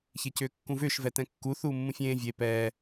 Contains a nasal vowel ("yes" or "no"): yes